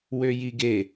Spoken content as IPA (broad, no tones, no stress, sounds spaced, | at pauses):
w ø j i ɡ e